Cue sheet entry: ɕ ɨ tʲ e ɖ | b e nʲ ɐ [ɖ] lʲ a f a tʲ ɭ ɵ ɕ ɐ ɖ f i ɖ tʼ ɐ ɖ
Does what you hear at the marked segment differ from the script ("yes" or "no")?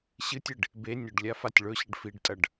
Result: no